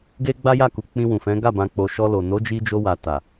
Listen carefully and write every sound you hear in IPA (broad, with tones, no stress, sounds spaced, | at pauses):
ɡ e˦ ɡ͡b a˦ j a˦˨ k u˨ k͡p ĩ˧ w ũ˨ f ɛ̃˨˦ ɡ a˦˨ b ã˧ k͡p o˧ ʃ ɔ˧ l o˨ n o˨˦ d͡ʒ i˧ d͡ʒ o˧ w a˨ t a˨